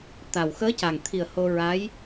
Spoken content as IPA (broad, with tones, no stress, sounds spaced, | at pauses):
t̪ a˨˩ w x əː˧˥ c a˨˩ ŋ t̪ʰ i˨˩ ə̯ h o˧ ɹ a˧˥ j